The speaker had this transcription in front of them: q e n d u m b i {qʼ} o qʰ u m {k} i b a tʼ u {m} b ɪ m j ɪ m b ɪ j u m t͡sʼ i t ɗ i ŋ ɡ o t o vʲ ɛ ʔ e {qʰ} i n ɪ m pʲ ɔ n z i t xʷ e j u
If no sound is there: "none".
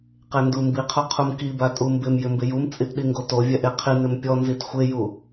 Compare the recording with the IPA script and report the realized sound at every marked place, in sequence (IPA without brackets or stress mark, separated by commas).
qʰ, k, m, qʰ